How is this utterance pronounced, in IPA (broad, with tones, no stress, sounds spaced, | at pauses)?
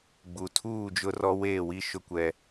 ɡ͡b u˨ tʰ uː˦˨ d͡ʒ ʊ˦ r ɔ˦ w eː˦˨ w i˦ ʃ ʊ˦ kʷ ɛ˦